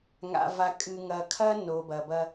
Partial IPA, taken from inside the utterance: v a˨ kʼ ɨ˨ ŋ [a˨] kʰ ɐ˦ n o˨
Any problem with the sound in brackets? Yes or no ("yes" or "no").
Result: yes